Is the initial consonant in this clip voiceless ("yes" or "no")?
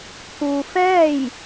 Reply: yes